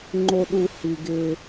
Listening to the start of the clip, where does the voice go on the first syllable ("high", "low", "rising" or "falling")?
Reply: low